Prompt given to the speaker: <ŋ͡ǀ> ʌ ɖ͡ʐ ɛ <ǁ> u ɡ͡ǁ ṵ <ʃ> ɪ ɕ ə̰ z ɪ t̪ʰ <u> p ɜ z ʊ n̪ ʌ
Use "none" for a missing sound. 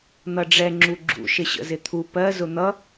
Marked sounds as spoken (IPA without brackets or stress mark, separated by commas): n̪, ŋ͡ǁ, ʃ, u